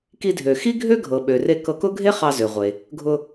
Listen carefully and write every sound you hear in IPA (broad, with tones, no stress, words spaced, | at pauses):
ki˧dʱø˩ xi˥ɡʱø˥ ɡʱɤ˩ɓø˩ re˧ kɤ˧kʊ˥ ɡʱe˥χɑ˧zø˩ʁʷe˩ | ɡʱʊ˧